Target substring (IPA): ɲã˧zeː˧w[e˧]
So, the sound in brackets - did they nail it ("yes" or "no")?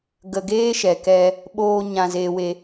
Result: yes